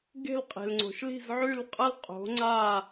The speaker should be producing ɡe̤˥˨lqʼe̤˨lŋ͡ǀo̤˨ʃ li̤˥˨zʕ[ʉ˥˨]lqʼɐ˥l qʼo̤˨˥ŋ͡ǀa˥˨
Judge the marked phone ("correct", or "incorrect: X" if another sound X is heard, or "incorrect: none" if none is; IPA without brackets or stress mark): correct